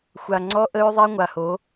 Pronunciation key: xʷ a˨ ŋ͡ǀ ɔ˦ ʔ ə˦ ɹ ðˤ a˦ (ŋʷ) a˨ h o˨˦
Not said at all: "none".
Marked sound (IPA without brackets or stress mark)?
ŋʷ